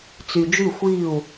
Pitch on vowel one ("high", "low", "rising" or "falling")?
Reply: low